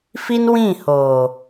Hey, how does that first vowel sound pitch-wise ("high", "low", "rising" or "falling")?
high